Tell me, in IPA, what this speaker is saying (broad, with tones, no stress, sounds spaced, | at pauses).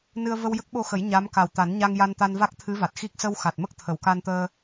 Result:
n ɨ˧ ə̯ v ə˧ w j ə˦˥ k̚ ɓ o˧ x ə˨˩˦ j ɲ a˧˥ m k a˨˩ w t̪ a˨˩˦ n ɲ a˧ ŋ j a˧ n t̪ a˧ n v a˦˥ k̚ t̪ʰ ɨ˧˥ v a˨˩ t̚ x i˦˥ k̚ s ə˧ w x a˨˩ t̚ m ə˦˥ k̚ t̪ʰ ə˨˩˨ w k a˧ n t̪ əː˧